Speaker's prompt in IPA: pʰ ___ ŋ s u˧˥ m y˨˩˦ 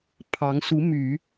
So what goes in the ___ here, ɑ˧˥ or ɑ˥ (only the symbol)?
ɑ˧˥